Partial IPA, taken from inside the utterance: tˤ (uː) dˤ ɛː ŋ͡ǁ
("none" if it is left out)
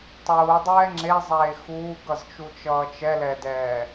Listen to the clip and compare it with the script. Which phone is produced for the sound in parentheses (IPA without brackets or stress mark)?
uː